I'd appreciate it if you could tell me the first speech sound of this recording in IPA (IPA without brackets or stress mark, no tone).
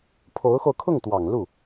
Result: pʰ